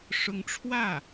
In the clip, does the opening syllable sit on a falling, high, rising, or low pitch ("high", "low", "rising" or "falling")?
rising